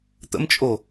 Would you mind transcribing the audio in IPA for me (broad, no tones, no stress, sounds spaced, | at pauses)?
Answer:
t̪ ə̰ m t͡ʃʼ o